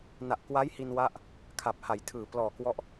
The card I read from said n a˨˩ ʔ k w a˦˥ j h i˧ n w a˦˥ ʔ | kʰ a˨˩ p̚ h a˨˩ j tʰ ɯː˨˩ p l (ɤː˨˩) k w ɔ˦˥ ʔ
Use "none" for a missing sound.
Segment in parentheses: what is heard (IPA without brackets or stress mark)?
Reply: ɔː˨˩